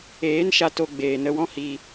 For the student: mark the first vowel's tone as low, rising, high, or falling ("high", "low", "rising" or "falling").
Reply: rising